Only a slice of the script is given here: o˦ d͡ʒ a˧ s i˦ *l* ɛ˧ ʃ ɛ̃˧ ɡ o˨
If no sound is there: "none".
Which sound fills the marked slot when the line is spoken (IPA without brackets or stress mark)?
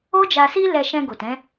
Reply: l